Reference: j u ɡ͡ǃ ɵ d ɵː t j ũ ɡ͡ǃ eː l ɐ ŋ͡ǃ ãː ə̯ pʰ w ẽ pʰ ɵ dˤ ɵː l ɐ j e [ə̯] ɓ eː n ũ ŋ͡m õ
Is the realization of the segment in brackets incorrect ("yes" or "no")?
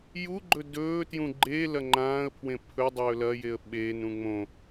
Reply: no